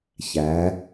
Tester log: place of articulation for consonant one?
palatal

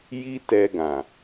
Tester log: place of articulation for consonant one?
palatal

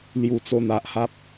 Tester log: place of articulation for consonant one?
alveolar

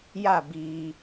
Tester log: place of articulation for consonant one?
palatal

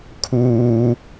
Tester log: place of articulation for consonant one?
velar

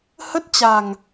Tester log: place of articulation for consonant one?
glottal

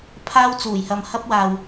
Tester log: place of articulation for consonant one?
labial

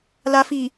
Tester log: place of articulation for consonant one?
alveolar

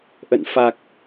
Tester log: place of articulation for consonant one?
glottal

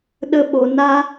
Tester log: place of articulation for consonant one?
alveolar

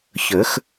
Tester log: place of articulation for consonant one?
palatal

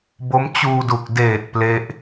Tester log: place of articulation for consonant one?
labial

